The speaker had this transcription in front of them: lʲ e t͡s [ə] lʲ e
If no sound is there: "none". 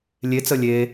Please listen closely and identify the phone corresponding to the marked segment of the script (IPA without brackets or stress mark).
ə